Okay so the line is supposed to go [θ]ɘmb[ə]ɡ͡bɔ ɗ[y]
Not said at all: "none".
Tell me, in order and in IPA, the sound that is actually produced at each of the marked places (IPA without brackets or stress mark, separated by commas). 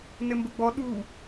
n, ə, u